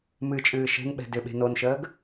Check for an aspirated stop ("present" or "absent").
absent